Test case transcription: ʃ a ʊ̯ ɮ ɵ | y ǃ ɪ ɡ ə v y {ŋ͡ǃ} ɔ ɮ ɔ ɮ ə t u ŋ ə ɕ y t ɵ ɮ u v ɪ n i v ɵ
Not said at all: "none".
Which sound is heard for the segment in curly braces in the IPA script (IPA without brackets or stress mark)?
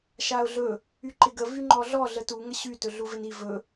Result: ŋ͡ǃ